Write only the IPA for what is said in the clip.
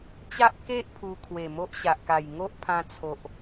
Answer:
t͡ɕ a˦ ʔ k e˦ ʔ pʰ u˧ kʰ w e˨˩ m o˦ ʔ ɕ a˨ ʔ k a˨˩ j ŋ o˦ ʔ pʰ ã˧ t͡sʰ o˨ ʔ

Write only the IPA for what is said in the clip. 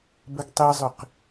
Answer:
b ə ɡ tˤ i zˤ ʏ q

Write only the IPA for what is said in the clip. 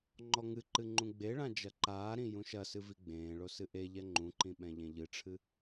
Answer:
ŋ͡ǃ ɔ ŋ ɨ ǃ ɨ ŋ͡ǃ ũ ɡ͡b e ɭ ã d͡ʒ ɐ ǃ aː ɾ ĩ j ũ ʃ ɐ s ɨ v i ɡ͡b ẽː ɭ o s ɨ ʔ e ʎ ɛ ŋ͡ǃ ũ ǃ ĩ ɓ ɛ̃ ʎ ẽ ʎ ɨ ʈ͡ʂʰ ɨ

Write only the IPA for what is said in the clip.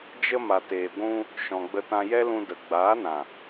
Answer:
d͡ʒ ə˧ m a˨ t eː˨ ɡʷ ũ˧ | ʃ ɔ̃˨ ɡ͡b ə˧ t ã˧ j ɛ˦ l ũ˧ d ə˨ ɡ͡b aː˨˦ n ã˨

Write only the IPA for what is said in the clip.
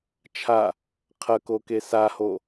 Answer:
t͡ʃʰ a | qʰ ɐ k o k e s a h o

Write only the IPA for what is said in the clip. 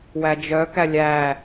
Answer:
w æ d͡ʒ œ k æ lʲ æ

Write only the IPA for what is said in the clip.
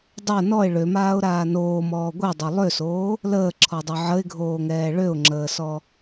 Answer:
dˤ o n ɔ ɪ̯ ɭ ø m aː ʊ̯ ɾ aː n oː m ɔː ɡʷ ɛ dˤ o lˠ ø s oː | l əː ǁʰ ɔ dˤ ø ʕ ə ɪ̯ ɡʱ oː ŋ ɛː ɭ ø ʊ̯ ŋ͡ǁ əː s ɔ

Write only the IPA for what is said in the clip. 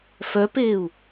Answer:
f œ p eː u̯

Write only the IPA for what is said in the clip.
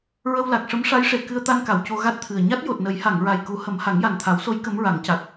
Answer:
ɹ ə˧ w l a˨˩ k̚ ʂ ə˧˥ m ʂ a˧˥ j ʂ e˨˩˨ k ɨ˧ ə̯ t̪ a˧ n k a˨˩˨ w c o˧ ɣ a˦˥ t̚ t̪ʰ ɨ˨˩ ə̯ ɲ a˦˥ t̚ j o˨˩ t̚ n ə˨˩˦ j h a˨˩˨ ŋ ɹ a˨˩ j k u˨˩˦ h ə˨˩˦ m h a˨˩˦ ŋ j a˨˩ n t̪ʰ a˨˩˦ w s o˧˥ j k ə˧˥ m ɹ a˨˩˦ ŋ c a˨˩ t̚

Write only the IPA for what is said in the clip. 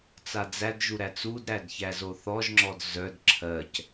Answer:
t͡s a d͡z æ d ʒ u ɾ æ t͡s u d ɾ æ d ç æ z o θ ɔ ʒ ŋ͡ǁ ɔ d z œ d ǁʰ ɜ c

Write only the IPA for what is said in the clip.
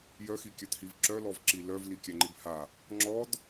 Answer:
j œ x i kʲ œ t h i v ǁ œ l ɔ v ǁ i l œ v l i kʲ æ ŋ͡ǃ i b h a | ŋ͡ǁ ɔ d

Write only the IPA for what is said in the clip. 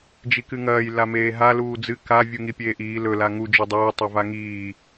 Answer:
d͡ʒ i k ɨ ŋ ɐː j l a m eː ɦ a l uː d͡z ɨ k a vʲ u ŋ i pʲ eː ʔ iː l ɵ l a ŋ u d͡ʒ o dˤ oː tˤ e v a ŋ iː

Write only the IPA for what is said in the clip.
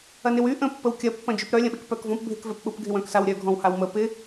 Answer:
ɐ n ɪ w y ʔ ə̃ pː ə w kʲ ɐ pː ɐ̃ d͡ʒ y p ɾ œ lʲ ɐ̃ ɓ ɪ k p œ k v ɔ̃ p bʱ ɪ k v ɛ p ɓ ʊ p ɡʱ ɪ w œ̃ k s a w ɾʲ œ ɡʱ ɔ̃ w h a w m ə p ɪ

